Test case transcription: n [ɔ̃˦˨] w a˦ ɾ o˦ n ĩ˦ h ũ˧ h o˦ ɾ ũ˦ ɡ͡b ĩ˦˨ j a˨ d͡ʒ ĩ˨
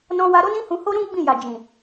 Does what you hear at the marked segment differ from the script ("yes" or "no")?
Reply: yes